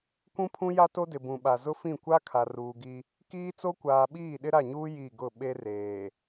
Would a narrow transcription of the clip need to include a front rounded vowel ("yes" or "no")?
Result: no